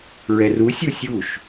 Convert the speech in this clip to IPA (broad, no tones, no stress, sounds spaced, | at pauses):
ɹ ɛ r u sʲ u sʲ u ʃ